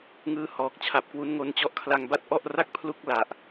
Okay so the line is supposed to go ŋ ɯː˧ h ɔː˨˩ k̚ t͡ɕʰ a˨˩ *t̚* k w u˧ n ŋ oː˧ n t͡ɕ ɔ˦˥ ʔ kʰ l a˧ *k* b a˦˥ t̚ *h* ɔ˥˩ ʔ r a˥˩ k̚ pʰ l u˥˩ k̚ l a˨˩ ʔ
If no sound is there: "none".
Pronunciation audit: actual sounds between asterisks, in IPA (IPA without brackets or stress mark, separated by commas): p̚, ŋ, ʔ